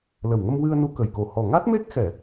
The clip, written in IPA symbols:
l ə˨˩ w ŋ ə˧ m w ɨ˧ ə̯ n u˧ k ə˨˩ j k o˨˩ h ɔ˨˩ ŋ a˦˥ t̚ m e˦˥ k̚ x ɛ˨˩˨

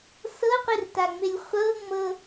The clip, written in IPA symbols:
s ɤ qʷ i r t a ŋ͡m e lʲ χʷ ɤ ŋ͡m ɤ

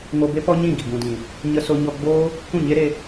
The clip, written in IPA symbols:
ŋ o˧ b e˦ p ɔ˦ ɲ ĩ˦˨ ɡ i˨ ɡ ũ˨ d ĩ˨ | ɲ ə˧ s o˧ ɲ ɔ˧ ɡ͡b oː˦ | k ũ˦˨ ɲ e˦ ɾ e˧

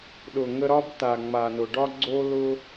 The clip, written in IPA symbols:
ɗ ʊ˨ ŋ ə˧ ɾ ɒ˦ b t̪ a˨ ŋ͡m a˨ n ʊ˨ ɖ ɒ˦ ɡ͡ǀ o˦ l ʊ˦

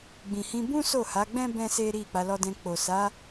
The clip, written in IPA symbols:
ɡ͡b ĩ˨ h ĩ˧ b ũ˦ s o˦˨ h a˨˦ ɡ͡b ɛ̃˦ b ɛ̃˦ s e˦ ɾ i˦˨ k͡p a˨˦ l ɔ˧ d ɛ̃˧ k͡p o˨ s a˨˦

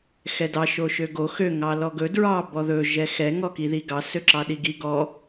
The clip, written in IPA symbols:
x ɛ d ɑ ʃ o ʃ ø ɡ o x ø ŋ ɑ l ɔ ɡ ɵ d ɹ ɑ b ɔ ð ɵ ʒ ɛ x ɛ ŋ ɔ k i ð i ɡ ɑ s ø ǁ ɑ ɗ i ɡ i ɡ ɔ

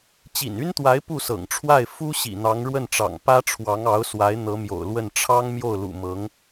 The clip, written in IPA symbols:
t͡ɕ ḭ˨˩ n y˥ n t̪ w a˧˥ ɪ̯ p u˥˩ s ɤ̰˨˩ ŋ ʈ͡ʂʰ w a˥˩ ɪ̯ f u˥ ɕ ḭ˨˩ n̪ ɑ˧˥ ŋ ɻ w ə˥˩ n ʈ͡ʂ ɑ̰˨˩ ŋ p ä˥ ʈ͡ʂʰ w ɑ˧˥ ŋ ɑ˧˥ ʊ̯ s w a˧˥ ɪ̯ n̪ ɤ˧˥ m j o̰˨˩ ʊ̯ l w ə˥˩ n ʈ͡ʂʰ ɑ˥ ŋ m j o˥˩ ʊ̯ l ṵ˨˩ m ɤ˧˥ ŋ

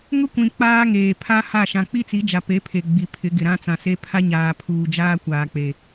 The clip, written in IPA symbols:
ŋ ʊ˦ kʷ ĩ˨ k͡p aː˦ ŋ eː˨ pʰ a˦ h a˦˨ ʃ ã˨ k͡p i˦ t͡s i˨˦ d͡ʒ a˨ p e˨˦ pʰ e˨ ɡ͡b i˨ pʰ ɪ˨˦ ɡ ɪ˨ ɾ ã˦ t͡s ã˨ s e˦ pʰ a˦ ɲ aː˨ pʰ uː˨ d͡ʒ aː˦ kʷ aː˨ k͡p e˨

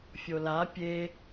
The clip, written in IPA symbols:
fʲ o l a pʲ e

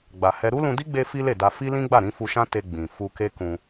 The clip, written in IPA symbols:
ɡ͡b a˧ h ɛ˦ ɾ u˦ l ũ˧ d i˦ ɡ͡b e˦ f i˦ l e˦˨ d a˧ f i˦ l ĩ˦ ɡ͡b a˦˨ ɾ ĩ˨˦ f u˧ ʃ ã˦ t e˧ ɡ͡b ĩ˨ f u˧ k e˦ k ũ˧

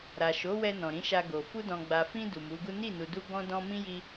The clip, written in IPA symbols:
ɾ a˨ ʃ o˨˦ w ɛ˧ n ɔ̃˨ ɾ ĩ˨˦ ʃ a˧ ɡ o˨ f u˧ d ɔ̃˨ ɡ͡b a˨ f ĩ˧ d u˨ m u˨˦ ɡ u˦ n i˦˨ n u˨ d u˧ ɡ ɔ̃˦ d ɔ̃˦ m ĩ˦ j i˧

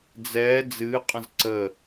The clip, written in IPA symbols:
d͡z ɛː d͡z ɨː qʼ ə̃ z ǀ ə

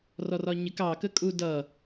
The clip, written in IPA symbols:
r ɔ r ɒ ɲ ɪ k ɑ k ə kʼ u d ʌ

